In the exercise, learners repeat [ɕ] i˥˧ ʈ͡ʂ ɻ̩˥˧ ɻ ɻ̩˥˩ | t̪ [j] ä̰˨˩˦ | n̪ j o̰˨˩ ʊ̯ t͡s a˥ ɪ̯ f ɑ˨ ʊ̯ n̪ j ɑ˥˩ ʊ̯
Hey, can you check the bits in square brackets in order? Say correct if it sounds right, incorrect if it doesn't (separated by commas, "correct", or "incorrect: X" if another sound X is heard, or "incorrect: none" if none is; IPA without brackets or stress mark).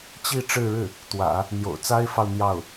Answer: incorrect: t͡ɕ, incorrect: w